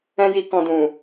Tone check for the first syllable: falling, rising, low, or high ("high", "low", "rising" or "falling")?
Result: high